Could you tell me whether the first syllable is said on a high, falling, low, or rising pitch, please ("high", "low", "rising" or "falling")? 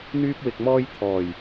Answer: high